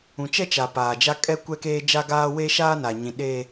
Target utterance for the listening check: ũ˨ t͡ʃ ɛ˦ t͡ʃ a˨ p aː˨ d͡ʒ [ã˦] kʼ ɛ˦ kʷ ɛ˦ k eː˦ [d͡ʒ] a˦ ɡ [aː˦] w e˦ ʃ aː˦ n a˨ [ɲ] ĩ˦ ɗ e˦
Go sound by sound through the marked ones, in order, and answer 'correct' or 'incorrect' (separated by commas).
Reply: incorrect, correct, correct, correct